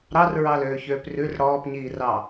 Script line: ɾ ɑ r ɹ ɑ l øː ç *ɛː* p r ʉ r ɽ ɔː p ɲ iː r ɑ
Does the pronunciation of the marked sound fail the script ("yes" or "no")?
yes